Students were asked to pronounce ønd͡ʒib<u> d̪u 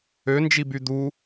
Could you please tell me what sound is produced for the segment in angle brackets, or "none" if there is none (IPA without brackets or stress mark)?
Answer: y